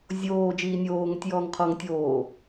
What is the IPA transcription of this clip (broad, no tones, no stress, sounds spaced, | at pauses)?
zʲ oː d͡ʒ iː nʲ oː ŋ ɵ tʲ j ɔː ŋ qʰ ɔ ŋ tʲ oː